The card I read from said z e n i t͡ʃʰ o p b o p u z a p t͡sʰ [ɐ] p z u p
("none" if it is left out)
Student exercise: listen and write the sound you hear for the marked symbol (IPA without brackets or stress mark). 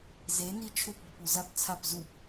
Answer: a